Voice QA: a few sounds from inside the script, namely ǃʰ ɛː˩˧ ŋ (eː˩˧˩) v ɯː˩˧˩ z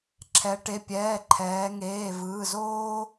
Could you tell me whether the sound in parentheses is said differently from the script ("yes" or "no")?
no